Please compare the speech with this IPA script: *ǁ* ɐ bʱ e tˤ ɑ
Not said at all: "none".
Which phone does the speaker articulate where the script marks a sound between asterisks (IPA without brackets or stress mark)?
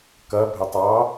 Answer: k